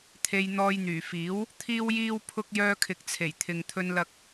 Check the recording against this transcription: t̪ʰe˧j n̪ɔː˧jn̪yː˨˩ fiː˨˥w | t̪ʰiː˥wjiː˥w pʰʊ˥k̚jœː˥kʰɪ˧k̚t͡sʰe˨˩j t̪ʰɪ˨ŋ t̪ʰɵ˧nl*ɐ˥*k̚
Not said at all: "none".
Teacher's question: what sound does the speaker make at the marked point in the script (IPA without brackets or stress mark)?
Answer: ɐ˧